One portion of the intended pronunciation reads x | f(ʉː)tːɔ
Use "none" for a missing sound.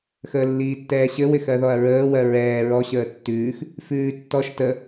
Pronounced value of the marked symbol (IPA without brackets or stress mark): ʉː